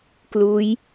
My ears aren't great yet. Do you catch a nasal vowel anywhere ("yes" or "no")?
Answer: no